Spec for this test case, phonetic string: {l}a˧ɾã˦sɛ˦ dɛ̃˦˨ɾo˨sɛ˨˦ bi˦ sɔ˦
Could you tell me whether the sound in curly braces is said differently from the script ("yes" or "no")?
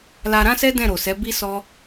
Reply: no